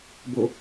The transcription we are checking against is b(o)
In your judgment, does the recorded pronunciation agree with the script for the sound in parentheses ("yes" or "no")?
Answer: yes